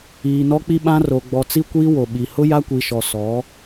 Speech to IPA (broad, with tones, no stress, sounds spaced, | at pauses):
iː˨ n ɔ˦ k͡p i˦ ɓ ã˦ r o˨ ɡ͡b ɔ˨ t͡s i˦ kʷ iː˦ w o˨ ɓ i˨ h ʊ˦ j a˦ kʷ i˨ ʃ ɔ˨ s ɔ˨˦